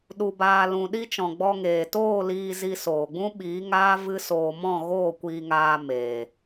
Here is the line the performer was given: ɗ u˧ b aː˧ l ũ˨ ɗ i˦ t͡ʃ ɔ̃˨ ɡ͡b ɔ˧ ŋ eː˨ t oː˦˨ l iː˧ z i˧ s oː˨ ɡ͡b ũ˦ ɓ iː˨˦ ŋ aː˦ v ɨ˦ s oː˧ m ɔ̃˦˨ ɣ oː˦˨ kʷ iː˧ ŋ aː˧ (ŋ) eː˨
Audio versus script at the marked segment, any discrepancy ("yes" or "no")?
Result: yes